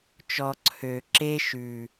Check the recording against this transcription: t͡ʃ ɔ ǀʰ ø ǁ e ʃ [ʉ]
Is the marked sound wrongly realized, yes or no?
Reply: no